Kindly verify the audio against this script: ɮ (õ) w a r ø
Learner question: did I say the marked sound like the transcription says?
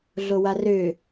no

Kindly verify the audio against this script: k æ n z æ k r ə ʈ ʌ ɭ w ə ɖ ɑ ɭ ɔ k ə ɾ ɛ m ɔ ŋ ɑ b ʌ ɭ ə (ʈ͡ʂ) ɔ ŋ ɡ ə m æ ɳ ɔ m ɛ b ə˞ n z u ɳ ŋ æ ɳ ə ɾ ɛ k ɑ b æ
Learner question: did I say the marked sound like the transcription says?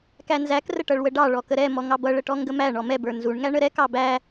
no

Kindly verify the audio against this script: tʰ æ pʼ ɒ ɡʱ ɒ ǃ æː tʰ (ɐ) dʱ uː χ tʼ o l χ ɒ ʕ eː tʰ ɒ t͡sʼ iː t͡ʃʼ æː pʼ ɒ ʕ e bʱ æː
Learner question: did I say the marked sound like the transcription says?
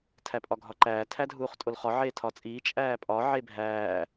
no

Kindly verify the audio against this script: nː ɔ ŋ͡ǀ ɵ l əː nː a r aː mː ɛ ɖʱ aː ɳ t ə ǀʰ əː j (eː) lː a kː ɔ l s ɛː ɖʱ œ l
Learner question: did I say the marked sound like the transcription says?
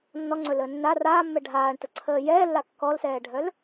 no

